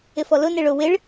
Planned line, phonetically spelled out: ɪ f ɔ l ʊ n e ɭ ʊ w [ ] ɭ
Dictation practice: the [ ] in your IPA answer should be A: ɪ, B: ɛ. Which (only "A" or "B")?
A